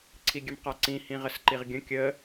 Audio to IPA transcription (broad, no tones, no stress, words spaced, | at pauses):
ǀʰiɡʲəmqaǀĩ hĩʁəsǃiʁɡʲə̃ kʲə